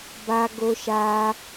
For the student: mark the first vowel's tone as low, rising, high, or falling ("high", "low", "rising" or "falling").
high